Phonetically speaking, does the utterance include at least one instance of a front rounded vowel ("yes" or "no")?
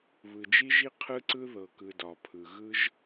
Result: no